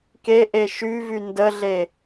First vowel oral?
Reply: yes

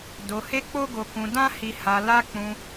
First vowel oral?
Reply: yes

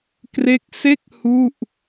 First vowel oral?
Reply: yes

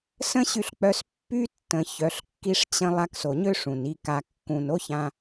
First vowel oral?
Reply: no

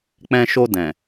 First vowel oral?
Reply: no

